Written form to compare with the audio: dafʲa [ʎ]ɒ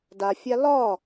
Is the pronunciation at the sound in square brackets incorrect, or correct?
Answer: incorrect